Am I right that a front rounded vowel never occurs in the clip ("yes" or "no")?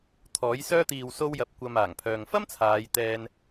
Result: no